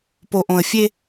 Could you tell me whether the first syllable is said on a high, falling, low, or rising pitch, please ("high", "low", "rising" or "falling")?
low